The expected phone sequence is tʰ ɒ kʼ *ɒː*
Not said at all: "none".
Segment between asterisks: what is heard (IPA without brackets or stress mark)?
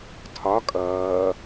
ʌː